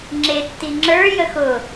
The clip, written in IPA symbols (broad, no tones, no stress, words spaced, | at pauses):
ŋ͡ǁetːi ŋ͡ǁə˞jə xʊ